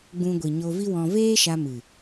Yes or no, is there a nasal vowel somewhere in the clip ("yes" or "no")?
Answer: yes